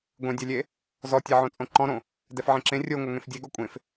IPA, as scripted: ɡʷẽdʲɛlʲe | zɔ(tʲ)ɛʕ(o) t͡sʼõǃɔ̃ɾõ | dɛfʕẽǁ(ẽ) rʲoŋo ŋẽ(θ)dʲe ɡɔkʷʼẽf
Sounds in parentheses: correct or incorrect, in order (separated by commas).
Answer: correct, incorrect, correct, incorrect